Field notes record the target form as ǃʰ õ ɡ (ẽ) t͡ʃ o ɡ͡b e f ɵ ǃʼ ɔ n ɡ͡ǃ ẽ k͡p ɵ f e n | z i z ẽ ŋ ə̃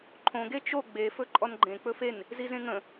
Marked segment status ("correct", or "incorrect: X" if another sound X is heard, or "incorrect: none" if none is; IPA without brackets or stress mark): incorrect: e